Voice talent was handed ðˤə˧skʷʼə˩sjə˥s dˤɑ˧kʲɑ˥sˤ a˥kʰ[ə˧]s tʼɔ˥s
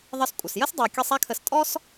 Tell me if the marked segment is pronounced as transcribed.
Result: yes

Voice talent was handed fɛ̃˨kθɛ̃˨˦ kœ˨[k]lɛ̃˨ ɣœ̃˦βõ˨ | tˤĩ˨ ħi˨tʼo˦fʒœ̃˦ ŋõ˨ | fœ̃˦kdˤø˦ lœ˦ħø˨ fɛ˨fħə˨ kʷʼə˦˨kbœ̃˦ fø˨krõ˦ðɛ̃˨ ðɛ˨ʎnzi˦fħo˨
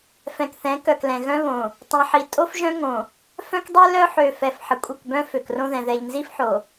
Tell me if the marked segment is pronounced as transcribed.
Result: yes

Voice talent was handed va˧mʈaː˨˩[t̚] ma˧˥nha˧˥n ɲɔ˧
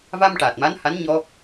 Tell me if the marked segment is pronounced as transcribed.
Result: yes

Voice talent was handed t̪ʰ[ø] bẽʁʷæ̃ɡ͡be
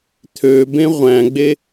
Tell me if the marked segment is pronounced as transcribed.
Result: yes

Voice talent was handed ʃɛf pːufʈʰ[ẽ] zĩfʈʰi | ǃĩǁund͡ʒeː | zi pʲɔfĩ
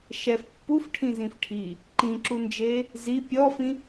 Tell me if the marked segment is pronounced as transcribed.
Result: no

